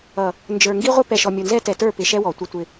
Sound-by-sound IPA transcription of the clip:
ʌ˨ | n d͡ʒ ə˞˨ ŋ ɡ i˦ ʁʷ ə˦ p ɛ˨ ʃ ɔ˨ mʲ ʊ˨ n z ɛ˦ t ɛ˨ t ə˞˦˨ p ɪ˨ ʃ ɛ˦ w ɔ˨ tʷ ɪ˦ tʷ ɪ˦

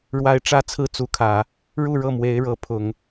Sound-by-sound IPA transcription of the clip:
ɻ w a˧˥ ɪ̯ ʈ͡ʂ ä˥˧ t͡sʰ ɹ̩˥˩ t͡s u˧˥ kʰ ä˨˩˦ | ɻ u˥˧ ɻ ɤ˥˩ m w e˧˥ ɪ̯ ɻ ɤ˧˥ pʰ ʊ˨˩˦ ŋ

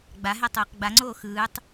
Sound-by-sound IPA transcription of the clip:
ɡ͡b a ɦ ɛ tˤ ɯː q ɡ͡b a ŋ͡ǀ oː x ɯː tˤ

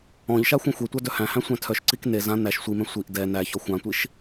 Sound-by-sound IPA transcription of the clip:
ɔ̃ ʎ ʃ a xʷ ɛ̃ xʷ e tʷ a d œ h æ̃ h æ̃ sʷ æ̃ tʰ œ ʃ ǀ i k n e z ã n æ ʃ sʷ i m ɛ̃ sʷ i ʔ d ɛ n æ ç ɔ xʷ ã tʷ i ʃ

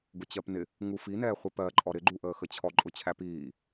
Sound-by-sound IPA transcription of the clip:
ɡ ʊ t͡ɕ ɜ p n ɪ | ŋ u f i n ɛː χʷ i p ɜ ǃʼ ɔ ɾ ɪ ɡ͡ǃ u ʔ əː x ə t͡ɕʰ ɔ ǃʼ ʊ t͡ɕʰ æ p iː

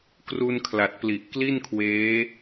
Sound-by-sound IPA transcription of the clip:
k r u˧ n kʰ l a˨˩ t̚ p l i˨˩ ʔ k l i˥˩ n kʰ w eː˦˥

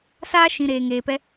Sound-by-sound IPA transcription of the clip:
s aː˦ ʃ ĩ˨ ɾ eː˨ ŋ eː˨ p ɛ˧

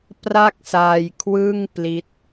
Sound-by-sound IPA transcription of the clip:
p r a˥˩ k̚ s aː˧ j kʰ w ɯ˥˩ ŋ p l i˦˥ t̚

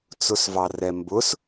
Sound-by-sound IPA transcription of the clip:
t͡s ʊ s v ɑ r ɛ m b ʊ s

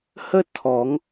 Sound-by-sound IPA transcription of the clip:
h ə˥ tʰ ɔ˨˩˦ ŋ

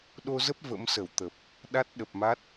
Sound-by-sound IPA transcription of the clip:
ɗ o˧ z ə˦˥ p̚ v ə̰˧˥ m s ə˧˩ w t̪ ə˨˩ p̚ | ɗ a˦˥ t̚ ɗ ə˨˩ p̚ m a˦˥ t̚

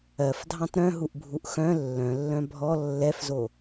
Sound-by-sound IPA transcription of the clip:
ɜ f dʱ ɑ̃ t ɾ œ̃ ɦ u ʔ bʱ u ʔ x œ̃ lː œ̃ lː œ̃ bʱ ɔ lː ɛ f z o

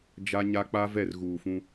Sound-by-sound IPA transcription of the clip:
d͡ʒ a˦ ɲ a˦ k͡p a˦ v ɛ˦˨ r ɣ uː˨ f ũ˦

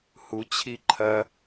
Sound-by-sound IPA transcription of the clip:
h u t͡ɕʰ i ǃʰ ɐ

